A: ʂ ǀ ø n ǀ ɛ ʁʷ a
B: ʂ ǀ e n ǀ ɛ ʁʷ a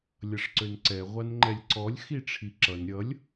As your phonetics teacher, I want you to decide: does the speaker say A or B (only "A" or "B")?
A